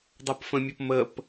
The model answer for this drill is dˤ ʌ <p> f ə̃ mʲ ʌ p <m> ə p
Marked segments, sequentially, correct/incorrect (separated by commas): correct, correct